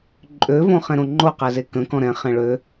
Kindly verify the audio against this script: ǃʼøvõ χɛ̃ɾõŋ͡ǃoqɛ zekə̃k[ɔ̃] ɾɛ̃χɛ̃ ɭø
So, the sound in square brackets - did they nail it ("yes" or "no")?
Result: yes